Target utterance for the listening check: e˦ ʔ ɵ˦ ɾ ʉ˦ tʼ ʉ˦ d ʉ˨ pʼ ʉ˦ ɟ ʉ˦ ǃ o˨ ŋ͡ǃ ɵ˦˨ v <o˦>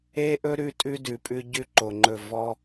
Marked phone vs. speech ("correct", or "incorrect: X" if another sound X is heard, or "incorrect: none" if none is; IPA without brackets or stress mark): incorrect: ɔ˦